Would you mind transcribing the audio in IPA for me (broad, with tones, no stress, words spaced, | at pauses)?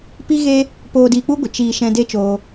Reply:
pi˦ɣe˦ | poː˧diː˧k͡pu˦ɡʷə˨ t͡ʃiː˧ ʃɛ̃˧de˦t͡ʃoː˧